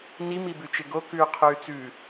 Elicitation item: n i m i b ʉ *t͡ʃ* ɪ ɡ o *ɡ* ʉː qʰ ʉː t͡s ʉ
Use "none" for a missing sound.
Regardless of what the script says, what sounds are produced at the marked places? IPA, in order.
t͡ʃ, k

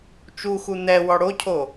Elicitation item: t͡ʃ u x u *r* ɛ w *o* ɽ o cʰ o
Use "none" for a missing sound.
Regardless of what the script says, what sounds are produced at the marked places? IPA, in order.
n̪, ɔ

